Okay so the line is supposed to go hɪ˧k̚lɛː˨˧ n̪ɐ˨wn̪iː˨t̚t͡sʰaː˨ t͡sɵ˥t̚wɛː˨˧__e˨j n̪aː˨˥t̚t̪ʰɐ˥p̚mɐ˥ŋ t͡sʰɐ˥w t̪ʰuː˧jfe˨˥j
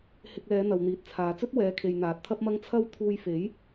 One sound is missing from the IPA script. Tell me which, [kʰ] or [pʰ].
kʰ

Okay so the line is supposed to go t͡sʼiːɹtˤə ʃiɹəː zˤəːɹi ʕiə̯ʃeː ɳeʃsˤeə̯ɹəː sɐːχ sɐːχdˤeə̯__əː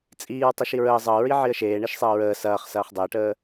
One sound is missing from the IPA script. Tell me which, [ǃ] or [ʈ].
ʈ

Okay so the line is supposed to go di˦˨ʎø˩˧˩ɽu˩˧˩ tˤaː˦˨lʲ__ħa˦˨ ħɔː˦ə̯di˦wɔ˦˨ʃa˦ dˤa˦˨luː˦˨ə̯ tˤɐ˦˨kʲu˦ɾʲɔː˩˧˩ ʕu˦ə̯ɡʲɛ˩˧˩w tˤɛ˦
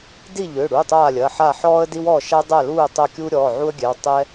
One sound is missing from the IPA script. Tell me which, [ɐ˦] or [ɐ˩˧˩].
ɐ˩˧˩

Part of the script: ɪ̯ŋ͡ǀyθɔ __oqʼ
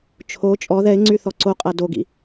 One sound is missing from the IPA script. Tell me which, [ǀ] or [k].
ǀ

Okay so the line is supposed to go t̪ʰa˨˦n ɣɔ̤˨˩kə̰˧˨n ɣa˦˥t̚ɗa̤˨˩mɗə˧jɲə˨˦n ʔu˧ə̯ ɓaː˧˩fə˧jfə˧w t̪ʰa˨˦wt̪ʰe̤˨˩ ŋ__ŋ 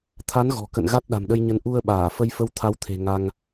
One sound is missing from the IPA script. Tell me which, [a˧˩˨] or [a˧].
a˧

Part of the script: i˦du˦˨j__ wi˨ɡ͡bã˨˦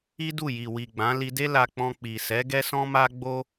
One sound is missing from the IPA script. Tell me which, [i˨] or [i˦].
i˨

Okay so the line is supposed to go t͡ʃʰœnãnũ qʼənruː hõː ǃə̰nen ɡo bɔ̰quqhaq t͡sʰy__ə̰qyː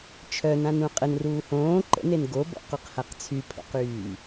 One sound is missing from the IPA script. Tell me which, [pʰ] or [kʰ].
pʰ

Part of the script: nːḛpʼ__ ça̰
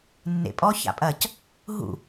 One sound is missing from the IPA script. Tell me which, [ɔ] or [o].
ɔ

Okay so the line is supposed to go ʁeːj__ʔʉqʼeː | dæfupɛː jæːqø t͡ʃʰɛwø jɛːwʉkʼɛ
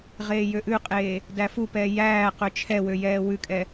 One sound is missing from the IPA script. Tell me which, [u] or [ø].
ø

